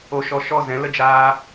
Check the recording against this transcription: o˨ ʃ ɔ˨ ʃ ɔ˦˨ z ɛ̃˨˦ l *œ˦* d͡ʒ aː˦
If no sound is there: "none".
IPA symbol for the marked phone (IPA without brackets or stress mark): ə˦